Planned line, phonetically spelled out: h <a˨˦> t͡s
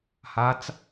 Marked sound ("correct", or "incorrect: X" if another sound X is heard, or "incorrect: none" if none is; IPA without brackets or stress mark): correct